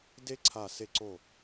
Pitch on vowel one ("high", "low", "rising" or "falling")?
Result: high